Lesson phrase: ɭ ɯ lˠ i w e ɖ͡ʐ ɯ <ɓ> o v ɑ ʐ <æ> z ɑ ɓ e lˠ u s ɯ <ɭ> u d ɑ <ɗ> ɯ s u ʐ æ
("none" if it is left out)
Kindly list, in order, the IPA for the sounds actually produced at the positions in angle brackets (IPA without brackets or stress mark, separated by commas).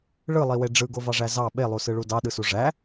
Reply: ɡ, æ, ɭ, ɗ